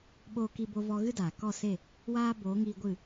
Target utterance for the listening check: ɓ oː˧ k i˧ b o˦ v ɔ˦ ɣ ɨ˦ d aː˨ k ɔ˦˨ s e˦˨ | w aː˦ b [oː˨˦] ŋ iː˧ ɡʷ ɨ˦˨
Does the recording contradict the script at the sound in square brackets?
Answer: no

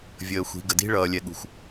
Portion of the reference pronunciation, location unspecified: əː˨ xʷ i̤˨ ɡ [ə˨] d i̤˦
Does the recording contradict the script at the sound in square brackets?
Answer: no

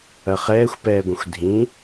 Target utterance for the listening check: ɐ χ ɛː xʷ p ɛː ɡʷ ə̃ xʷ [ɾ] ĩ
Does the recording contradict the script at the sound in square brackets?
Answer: yes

